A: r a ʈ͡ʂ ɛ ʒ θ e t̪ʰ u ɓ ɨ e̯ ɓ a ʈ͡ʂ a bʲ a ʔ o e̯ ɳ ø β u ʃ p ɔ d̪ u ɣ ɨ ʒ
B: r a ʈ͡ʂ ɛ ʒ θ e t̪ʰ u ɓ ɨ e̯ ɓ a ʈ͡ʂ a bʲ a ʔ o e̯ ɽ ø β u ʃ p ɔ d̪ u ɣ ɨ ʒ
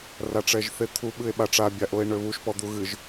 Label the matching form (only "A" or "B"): A